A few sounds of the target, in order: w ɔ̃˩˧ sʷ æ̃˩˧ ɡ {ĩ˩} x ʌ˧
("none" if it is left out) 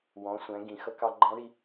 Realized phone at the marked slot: ĩ˩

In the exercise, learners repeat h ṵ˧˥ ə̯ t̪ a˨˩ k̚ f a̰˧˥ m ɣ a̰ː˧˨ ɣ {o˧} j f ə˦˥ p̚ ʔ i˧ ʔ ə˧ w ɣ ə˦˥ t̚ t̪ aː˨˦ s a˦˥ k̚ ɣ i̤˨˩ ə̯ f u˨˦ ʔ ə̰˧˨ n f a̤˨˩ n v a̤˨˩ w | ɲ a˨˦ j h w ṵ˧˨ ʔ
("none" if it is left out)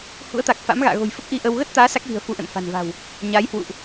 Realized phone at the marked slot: o̤˨˩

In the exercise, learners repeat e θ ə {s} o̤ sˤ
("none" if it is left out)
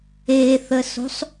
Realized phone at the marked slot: s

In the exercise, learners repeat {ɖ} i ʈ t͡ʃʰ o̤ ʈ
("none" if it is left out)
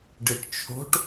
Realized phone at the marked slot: ɖ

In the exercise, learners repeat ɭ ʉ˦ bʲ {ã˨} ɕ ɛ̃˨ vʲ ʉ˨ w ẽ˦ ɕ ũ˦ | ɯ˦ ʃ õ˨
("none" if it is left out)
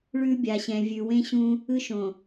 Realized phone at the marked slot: a˨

